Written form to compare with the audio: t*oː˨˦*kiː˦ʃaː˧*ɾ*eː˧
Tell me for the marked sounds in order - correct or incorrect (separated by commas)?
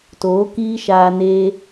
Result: correct, incorrect